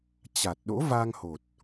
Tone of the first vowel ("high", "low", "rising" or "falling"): low